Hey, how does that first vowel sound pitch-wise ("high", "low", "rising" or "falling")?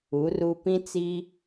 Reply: rising